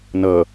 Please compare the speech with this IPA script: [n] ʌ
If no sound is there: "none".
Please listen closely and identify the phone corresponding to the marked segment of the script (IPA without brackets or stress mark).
n